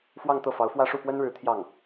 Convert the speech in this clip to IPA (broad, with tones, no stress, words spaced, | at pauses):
fwɑ˥˧ŋt̪ɤ˥˩fɑ˧˥ʊ̯fwä˥ ʂu˥˩pwə˥nɻɻ̩˧˥ t̪ʰjɑ˥˩ŋ